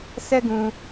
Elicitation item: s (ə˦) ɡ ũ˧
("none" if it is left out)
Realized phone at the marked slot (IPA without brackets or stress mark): ɛ˦